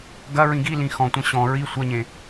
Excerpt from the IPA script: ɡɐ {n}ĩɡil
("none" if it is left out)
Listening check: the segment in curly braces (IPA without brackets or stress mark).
ɹ